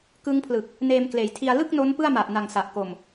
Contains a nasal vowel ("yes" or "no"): no